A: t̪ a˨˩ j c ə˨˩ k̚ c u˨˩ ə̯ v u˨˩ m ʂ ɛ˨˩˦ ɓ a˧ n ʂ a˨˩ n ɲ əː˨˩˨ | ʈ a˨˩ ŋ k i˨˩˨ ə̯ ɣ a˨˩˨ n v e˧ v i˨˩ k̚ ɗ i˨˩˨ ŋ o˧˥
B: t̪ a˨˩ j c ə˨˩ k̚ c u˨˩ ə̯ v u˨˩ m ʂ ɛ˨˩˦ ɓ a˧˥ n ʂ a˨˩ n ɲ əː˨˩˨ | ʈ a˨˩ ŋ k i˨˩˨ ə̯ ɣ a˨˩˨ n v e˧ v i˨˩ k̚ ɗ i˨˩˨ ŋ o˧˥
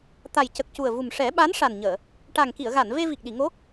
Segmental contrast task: B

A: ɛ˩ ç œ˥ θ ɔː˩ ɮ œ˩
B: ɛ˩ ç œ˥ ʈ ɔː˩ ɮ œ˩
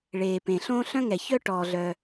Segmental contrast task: B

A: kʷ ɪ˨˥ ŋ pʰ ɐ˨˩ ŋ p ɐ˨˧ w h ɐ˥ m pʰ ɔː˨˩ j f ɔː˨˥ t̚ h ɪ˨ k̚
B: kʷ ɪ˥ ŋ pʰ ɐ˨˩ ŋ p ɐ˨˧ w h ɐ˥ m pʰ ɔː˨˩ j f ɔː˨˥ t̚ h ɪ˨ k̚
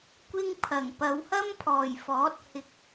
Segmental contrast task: B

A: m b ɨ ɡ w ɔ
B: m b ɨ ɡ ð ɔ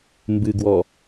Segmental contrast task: A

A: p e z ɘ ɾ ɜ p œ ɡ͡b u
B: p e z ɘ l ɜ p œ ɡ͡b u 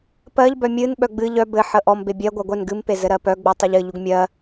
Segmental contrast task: A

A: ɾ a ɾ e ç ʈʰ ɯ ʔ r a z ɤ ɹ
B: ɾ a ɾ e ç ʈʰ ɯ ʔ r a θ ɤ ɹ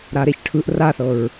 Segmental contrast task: B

